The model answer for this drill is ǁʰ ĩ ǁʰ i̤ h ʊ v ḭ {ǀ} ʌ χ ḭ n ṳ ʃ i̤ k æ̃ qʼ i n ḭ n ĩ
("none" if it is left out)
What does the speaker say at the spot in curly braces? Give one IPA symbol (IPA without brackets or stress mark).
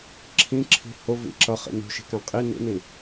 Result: ǁ